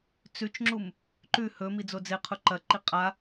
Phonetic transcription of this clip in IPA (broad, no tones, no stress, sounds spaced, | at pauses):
t͡s ʉ t͡ʃ ŋ͡ǁ u m | ǃ ʉ h ɵ m i d͡z o d͡z e qʰ u ǃ ɐ ǃ i qʼ a